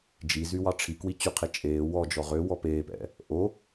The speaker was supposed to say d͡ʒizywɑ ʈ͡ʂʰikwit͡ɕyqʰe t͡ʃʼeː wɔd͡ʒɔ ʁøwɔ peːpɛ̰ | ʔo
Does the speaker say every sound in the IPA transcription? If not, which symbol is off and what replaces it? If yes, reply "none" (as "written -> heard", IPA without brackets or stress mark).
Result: none